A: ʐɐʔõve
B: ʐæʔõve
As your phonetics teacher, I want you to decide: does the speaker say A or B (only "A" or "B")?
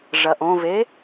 A